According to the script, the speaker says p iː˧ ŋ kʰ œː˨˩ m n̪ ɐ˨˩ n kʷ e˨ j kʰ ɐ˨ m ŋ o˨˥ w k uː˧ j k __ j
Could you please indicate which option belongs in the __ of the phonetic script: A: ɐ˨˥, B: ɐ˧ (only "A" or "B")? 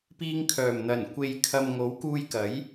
A